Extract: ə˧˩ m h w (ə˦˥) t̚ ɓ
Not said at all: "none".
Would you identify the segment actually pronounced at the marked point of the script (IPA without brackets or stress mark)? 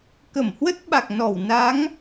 ə˦˥